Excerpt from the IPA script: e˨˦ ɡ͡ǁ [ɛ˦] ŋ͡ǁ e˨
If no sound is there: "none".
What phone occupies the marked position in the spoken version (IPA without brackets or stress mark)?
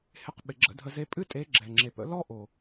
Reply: ɛ˨